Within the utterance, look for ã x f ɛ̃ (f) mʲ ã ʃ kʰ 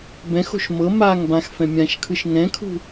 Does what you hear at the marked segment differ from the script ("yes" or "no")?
yes